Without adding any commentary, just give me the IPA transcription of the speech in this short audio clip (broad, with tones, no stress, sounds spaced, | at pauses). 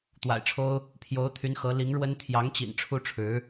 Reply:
t̪ w a̰˨˩ ɪ̯ ʈ͡ʂʰ o˥ ʊ̯ | pʰ j o˧˥ ʊ̯ t̪ʰ y˧˥ n x ɤ˧˥ l i˧˥ ŋ ɻ w ə˥ n t̪ʰ j ɑ˧˥ ŋ t͡ɕ ḭ˨˩ n ʈ͡ʂʰ u˥ ʈ͡ʂʰ ɻ̩˧˥